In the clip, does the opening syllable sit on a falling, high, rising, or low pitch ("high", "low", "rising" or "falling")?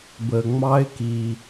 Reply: low